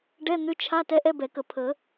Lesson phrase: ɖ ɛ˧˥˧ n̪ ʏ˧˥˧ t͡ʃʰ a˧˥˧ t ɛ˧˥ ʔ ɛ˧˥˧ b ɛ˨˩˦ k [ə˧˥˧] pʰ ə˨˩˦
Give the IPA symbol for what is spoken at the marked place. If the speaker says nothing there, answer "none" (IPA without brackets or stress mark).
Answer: ə˨˩˦